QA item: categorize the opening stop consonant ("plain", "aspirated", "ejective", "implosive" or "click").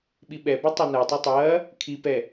implosive